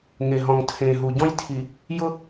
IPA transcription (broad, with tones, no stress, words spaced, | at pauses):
ŋe˨ɦɔ̃˨ŋtʰẽː˨ ɦu˨ɟɔ̃˦j tʰi˨ | jʊ˦